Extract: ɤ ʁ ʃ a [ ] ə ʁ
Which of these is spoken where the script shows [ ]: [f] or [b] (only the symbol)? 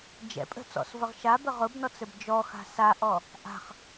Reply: b